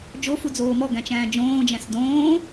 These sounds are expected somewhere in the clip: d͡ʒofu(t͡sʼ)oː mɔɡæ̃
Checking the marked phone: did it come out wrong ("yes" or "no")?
yes